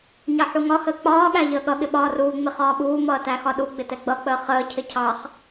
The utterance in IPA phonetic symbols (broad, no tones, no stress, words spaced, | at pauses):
ɲɑħuŋɒhəː k͡pɒːɠæ ʎəːɠʌɠɪ ɓɒːruːŋ͡mɪ χɒːɓuːmʌː tæxɒɗuɡ͡bɪ tɛɡ͡bʌk͡pəː χəːcʰɪ cʰɑχ